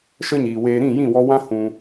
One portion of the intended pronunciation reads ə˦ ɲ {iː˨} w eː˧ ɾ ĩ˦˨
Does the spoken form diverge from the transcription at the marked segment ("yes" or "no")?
no